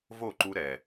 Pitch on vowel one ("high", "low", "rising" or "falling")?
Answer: falling